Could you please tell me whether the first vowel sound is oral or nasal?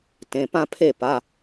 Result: nasal